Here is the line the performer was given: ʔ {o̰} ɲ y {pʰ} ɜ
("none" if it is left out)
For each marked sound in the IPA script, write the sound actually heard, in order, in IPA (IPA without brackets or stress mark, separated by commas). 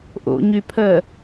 o̰, pʰ